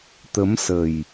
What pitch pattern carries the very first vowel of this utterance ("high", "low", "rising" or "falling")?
rising